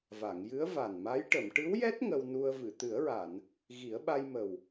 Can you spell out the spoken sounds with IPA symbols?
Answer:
v a˨˩˨ ŋ j ɨ˧˥ ə̯ v a˨˩ n m a˧˥ j ʈ ə˨˩˨ m ʈ ɨ˧˥ w j ɛ˦˥ t̚ ŋ ə˧ w n u˧ ə̯ v ɨ˨˩˨ t̪ ɨ˨˩˦ ə̯ ɹ a˨˩˨ n | ɣ i˨˩˦ ə̯ ɓ a˧ j m ə˨˩ w

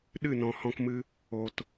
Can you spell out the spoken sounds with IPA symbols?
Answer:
ɗ ɨ˦˨ n ɔ̃˨ h ɔ̃˧ k m ɨ˧ | o˨ t

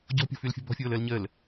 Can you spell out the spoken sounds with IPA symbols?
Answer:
ɟ ɔ̤ pʲ ɔ̤ f y l fʲ ɔ̤ b ɔ̤ fʲ oː l əː l ɲ əː l

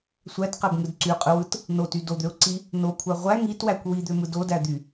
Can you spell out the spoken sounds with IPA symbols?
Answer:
sʷ æ t q æ b ŋ ɯ d ǀ y qʼ ɯ w ɯ t | n o t y d o d̪ ø ʊ̯ ǀ i | n o kʷʰ æ ʁʷ æ ŋ i t w æ kʷ w i d̪ ø m ɯ d o d æ d̪ y

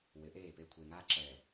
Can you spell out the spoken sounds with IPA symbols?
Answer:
w ɪ˨˦ ʔ eː˦˨ p e˦ kʷʰ eː˨ ŋ aː˦ ǁ ɛː˨

